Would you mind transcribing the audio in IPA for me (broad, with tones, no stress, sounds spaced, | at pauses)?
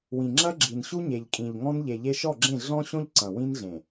w ĩ˨ ŋ͡ǁ ɐ˦ ɡ͡ǁ i˨ n ɕ u˦ ɲ e˨ ʎ kʼ ĩ˨ ʎ ŋ ɔ̃˦ n ʎ e˨ ʎ e˦ ʃ ɔ˦˨ ɡ͡ǁ ẽ˦˨ ɮ ɔ̃˦ ɕ õ˦ ʎ ǀ ɐ̃˨ w ĩ˦ n ɮ ẽ˨